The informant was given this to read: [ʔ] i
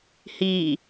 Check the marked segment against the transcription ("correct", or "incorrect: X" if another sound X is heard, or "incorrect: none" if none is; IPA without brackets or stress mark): incorrect: h